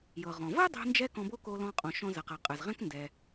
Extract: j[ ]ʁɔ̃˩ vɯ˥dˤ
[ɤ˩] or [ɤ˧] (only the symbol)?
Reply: ɤ˩